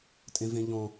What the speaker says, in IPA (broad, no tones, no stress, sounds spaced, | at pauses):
tʼ ẽ v ẽ ʎ ɔ̃